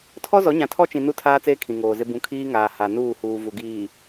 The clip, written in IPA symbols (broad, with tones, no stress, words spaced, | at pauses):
tʰɔ˦zɔ˨˦ɲã˨ tʰɔ˦t͡ʃĩ˨ nu˦tʰaː˦ t͡seː˦kʰĩ˨ŋoː˨zɪ˦ bũ˨ kʰiː˦ŋaː˨ ha˨nuː˦˨ huː˨vu˨ɡiː˨